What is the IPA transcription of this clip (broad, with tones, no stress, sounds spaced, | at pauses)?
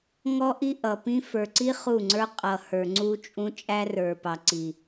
ŋ ɔ˦ ʔ i˦ ʔ ʌ˨ p ĩ˦ f ə˞˨ ǀ i˦ χ u˦˨ ŋ͡ǀ ə˞˦ qʼ ʌ˨ h ə˞˨ ŋ͡ǀ u˦ t͡ʃʼ ũ˦ t͡ʃʼ æ˦ r ə˞˨ p ɑ˨ ǀ i˨